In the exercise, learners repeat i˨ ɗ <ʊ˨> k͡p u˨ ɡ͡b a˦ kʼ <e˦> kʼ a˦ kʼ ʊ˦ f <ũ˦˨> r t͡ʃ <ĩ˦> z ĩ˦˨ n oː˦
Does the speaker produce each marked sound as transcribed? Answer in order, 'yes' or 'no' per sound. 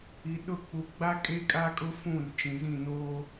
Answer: no, yes, yes, no

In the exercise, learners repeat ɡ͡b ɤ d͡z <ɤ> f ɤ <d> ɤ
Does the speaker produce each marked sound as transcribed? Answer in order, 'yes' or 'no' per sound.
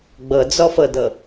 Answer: no, yes

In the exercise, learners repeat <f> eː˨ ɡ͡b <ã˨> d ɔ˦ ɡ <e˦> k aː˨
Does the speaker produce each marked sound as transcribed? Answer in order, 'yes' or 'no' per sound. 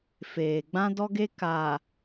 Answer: yes, no, yes

